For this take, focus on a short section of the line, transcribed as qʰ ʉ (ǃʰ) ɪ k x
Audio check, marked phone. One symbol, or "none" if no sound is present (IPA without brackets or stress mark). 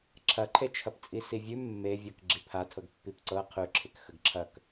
ǁʰ